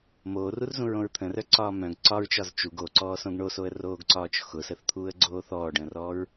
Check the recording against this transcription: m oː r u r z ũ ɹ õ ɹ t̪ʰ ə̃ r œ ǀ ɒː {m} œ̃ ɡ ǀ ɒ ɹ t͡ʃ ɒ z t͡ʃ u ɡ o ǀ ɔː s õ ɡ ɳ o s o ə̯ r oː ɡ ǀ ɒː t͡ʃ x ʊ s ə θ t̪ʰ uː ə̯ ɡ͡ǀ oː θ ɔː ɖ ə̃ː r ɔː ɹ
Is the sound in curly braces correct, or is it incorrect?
correct